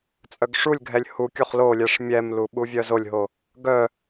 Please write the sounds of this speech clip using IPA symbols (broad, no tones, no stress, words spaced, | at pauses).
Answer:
t͡sʼœɡʂulʲɡʱɛlʲ hukʲoχ lolʲɛʂ mʲɛmlu ɓuvʲœzolʲɦo | ɡœ